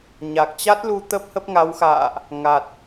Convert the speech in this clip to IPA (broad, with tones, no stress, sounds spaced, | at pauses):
ɲ a˨˩ k̚ t͡ɕ a˦˥ t̚ l u˧ t̪ ə˦˥ p̚ h ə˦˥ p̚ ŋ a˨˦ w x a̰ː˧˨ ʔ | ŋ a˨˩ t̚